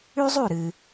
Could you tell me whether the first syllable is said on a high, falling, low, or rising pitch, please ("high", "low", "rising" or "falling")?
high